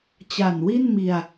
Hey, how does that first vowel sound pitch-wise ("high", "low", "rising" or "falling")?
low